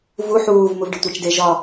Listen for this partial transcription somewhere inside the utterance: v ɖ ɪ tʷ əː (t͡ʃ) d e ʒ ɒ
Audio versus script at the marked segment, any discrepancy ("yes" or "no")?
no